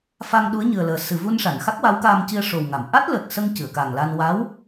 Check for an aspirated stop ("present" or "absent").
absent